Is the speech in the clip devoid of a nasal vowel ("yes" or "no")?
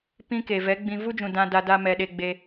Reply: no